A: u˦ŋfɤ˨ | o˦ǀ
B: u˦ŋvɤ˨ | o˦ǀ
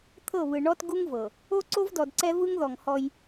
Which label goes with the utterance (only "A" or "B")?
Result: B